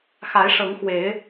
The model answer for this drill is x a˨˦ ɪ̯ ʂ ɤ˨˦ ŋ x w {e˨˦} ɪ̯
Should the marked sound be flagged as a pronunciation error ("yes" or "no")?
no